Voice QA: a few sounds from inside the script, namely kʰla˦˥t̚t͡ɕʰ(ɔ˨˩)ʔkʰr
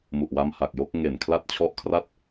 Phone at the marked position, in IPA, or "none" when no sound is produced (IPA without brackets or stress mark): ɔ˦˥